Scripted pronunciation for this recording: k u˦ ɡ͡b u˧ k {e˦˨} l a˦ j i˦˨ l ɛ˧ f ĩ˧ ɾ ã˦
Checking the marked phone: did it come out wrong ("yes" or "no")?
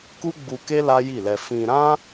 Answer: yes